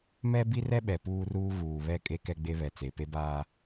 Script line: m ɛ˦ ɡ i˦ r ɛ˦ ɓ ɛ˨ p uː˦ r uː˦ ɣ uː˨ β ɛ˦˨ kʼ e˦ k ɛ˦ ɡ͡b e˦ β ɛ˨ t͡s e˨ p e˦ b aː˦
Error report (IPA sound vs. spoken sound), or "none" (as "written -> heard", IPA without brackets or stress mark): ɡ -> b